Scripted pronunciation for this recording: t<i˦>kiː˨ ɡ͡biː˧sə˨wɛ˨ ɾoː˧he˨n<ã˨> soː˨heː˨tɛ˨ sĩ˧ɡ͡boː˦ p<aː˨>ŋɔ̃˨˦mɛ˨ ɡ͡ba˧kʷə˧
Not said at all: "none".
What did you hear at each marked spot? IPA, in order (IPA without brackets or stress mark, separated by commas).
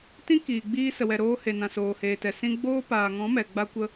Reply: ĩ˦, ã˨, aː˨